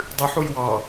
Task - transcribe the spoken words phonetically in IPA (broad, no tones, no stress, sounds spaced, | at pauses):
dˤ ɨ ħ u j w ɑ